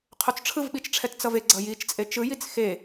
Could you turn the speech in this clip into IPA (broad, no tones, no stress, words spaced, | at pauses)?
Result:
qʰot͡sʈ͡ʂʰɯvɓit͡ʃʈ͡ʂʰɛt t͡sʌve ɡ͡ǀʌjit͡ʃt͡sʼe t͡ʃɯ jit͡sxe